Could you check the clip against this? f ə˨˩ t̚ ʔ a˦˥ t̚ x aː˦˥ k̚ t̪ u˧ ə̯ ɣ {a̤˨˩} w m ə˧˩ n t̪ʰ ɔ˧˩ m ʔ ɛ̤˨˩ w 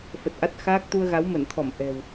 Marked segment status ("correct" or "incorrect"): incorrect